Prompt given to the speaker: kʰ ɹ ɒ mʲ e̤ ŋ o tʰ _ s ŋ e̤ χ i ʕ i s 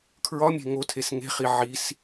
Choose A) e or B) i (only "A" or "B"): A